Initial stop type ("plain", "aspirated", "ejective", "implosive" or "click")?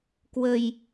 plain